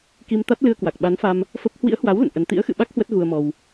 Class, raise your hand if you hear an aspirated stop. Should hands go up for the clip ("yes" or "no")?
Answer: no